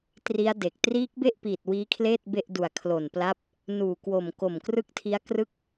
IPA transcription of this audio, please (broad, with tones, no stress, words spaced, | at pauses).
tri˦˥a̯de˨˩k̚ triː˦˥k̚be˥˩ʔpiː˨˩t̚ wiː˦˥kʰleː˥˩t̚ be˥˩ʔdu˨˩a̯ kʰlo˨˩npla˦˥p̚ | nuː˨˩kwo˨˩mko˨˩m krɯ˦˥k̚tʰi˦˥a̯ krɯ˥˩k̚